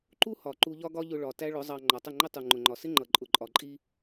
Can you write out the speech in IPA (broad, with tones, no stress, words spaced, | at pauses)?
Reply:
ǃu˦hɒ˨ ǃu˧ʎɒ˦ɡɒ˦ʎʊ˧ ɭɒ˨ tæ˦ɭʊ˨˦zˤɑ˧ ŋ͡ǃɒ˨tˤə˦˨ŋ͡ǃə˦ tˤu˨ŋ͡ǃʊ˨ŋ͡ǃɒ˨ sɪ˦ŋ͡ǃʌ˨ ǃʼʊ˨ǃʼɒ˨ǃʼi˧